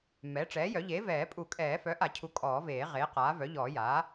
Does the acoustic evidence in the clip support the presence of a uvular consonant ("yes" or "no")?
yes